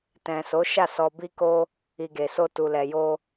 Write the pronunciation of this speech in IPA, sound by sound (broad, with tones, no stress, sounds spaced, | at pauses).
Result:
t ɛ̃˨ s o˨˦ ʃ a˦˨ s ɔ˧ b i˦ k o˦ | i˨ ɡ e˨ s o˧ t u˨ l ɛ˨ j o˧